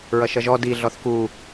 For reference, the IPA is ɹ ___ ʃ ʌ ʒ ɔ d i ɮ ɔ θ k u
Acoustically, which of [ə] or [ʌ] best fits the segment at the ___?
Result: ʌ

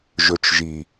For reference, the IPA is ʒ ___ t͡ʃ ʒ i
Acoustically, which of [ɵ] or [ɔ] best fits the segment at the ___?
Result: ɵ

